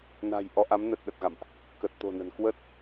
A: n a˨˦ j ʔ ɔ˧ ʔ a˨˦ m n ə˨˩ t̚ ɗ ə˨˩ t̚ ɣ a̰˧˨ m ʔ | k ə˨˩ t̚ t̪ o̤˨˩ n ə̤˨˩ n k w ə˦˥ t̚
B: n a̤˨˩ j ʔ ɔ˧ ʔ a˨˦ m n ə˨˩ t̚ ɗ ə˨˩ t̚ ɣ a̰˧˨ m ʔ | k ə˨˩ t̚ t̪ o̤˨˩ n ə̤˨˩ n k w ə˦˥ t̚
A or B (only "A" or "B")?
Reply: B